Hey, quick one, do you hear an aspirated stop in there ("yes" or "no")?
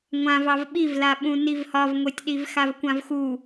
no